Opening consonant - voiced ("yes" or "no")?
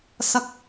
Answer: no